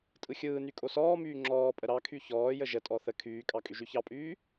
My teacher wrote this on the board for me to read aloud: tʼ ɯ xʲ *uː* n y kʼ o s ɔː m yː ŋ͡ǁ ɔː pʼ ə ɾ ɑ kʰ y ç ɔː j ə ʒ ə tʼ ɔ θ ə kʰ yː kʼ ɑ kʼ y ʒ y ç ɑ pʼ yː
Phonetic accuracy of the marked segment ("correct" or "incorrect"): incorrect